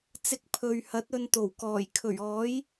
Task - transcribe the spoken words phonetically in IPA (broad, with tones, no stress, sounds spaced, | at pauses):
t͡s ɪ˧ k̚ pʰ ɵ˨ ɥ h ɐ˨˥ t̚ ɵ˧ n t̪ o˨˩ w k ɔː˨˩ j kʰ ɵ˨˩ ɥ ɔː˨˥ j